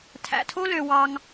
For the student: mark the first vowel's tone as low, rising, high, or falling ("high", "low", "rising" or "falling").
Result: low